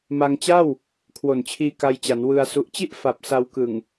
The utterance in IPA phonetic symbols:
ma˧ŋt͡ɕa˥˩w | kʰwo˨˩nt͡ɕʰiː˧ ka˧jt͡ɕa˩˦n wɯ˧a̯ su˨˩ʔt͡ɕi˥˩ʔ fa˨˩p̚ sa˧wkɯ˨˩ŋ

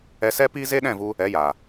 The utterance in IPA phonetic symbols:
ɛ˧sɛ˦ piː˦ze˦ɗɛ̃˦˨vu˧ | ɛ˨˦jaː˨

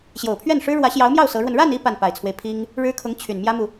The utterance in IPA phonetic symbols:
ɕjo˨˩ʊ̯pʰɥɛ˥˩nʂɻ̩˥ ɻwä˧˥ɕjɑ˧˥ʊ̯mjɑ˥˩ʊ̯ sɤ˧˥ɻwə˧n ɻa˥˧ni˥˧ pa˥˩npa˨˩ɪ̯t͡sʰwe˦ɪ̯ pʰi˥ŋ | ɻɻ̩˥kʰʊ˧˥ŋ t͡ɕʰy˨˩n mjä˥mu˨

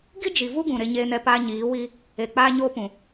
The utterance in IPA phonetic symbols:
ɡi˦d͡ʒi˨vu˦ɡũ˨ ɾe˦ɲeː˦nɛ˦ paː˦ɲiː˨˦wi˦ | e˨ k͡paː˦ɲoː˦pũ˨

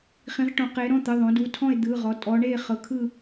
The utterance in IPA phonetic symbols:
χĩ˩˧ʁʈõ˩˧qe˩˧ɾɔ̃˩˧˩ t̪ɯ˩˧˩ðˤõ˩˧du˩˧˩tʰɔ̃˦˨e̯ d̪ɯ˩˧˩ʁɔ˩˧ tʼɔ˩˧ɳe˦˨ χɤ˩˧kʰɯ˦˨

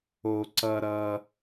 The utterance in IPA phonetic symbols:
o˧ ǀʌ˧ɾʌ˧

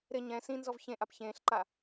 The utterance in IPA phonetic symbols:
ɾɪ ɲɛ̃ sĩnzɔv çẽʔap çẽːɬǃa

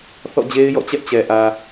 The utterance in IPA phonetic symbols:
θɔ̰˦˨d͡ʑe˦ɪ̯jɔ̰˦˨t͡ɕɛ˦ʔ t͡ɕɛ˨ʔä˨

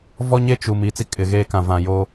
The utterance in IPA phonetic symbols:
vɔ˦ɲe˦ t͡ʃu˨m i˦˨t͡si˦ kʼɪ˨ɣeː˦kã˨ vã˨jo˦

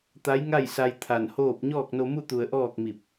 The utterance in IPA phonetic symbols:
t̪a˧˥jŋa˥˨jsa˧j t̪ʰa˧˩nhoː˥˨p̚ ɲɔː˥˨k̚no˧mu˥˨t̪u˧˩ə̯ ʔɔː˥˨k̚mi˧˩p̚

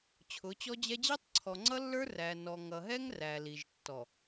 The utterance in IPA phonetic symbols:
t͡ɕʰʊ˨˦t͡ɕɔ˦d͡ʑɛ˦ d͡ʑi˦tˤǀʰɔ˨ ŋ͡ǀʌ˦lːə˞˦ræ˨ nɔ˨ ŋʌ˨ɦɛ˦ŋ ræ˨li˨ʒ tːɔ˨

